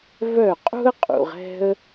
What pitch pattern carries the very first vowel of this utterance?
falling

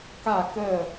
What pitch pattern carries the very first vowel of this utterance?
falling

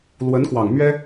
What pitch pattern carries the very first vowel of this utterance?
rising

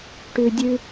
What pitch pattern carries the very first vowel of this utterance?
high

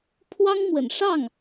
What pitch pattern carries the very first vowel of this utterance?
high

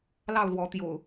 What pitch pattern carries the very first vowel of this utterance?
falling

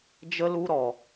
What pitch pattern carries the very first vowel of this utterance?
high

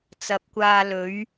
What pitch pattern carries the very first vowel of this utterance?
rising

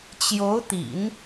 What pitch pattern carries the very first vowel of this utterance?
rising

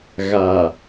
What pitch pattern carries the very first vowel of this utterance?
low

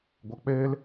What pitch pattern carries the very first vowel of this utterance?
low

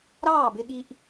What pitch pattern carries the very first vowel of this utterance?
falling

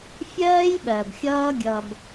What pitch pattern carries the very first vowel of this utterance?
high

